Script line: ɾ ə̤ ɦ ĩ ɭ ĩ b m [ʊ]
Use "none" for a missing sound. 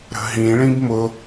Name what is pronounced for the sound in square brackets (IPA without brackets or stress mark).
ʊ